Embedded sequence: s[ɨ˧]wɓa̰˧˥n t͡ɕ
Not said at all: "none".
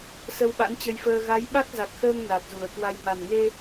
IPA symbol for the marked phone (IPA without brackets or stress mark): ə˧